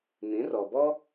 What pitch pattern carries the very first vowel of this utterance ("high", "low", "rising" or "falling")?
rising